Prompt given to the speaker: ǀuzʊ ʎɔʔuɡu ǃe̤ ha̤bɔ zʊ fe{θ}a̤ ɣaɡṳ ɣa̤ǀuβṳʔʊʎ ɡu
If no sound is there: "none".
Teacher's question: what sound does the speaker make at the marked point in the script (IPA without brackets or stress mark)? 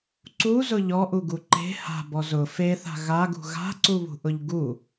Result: θ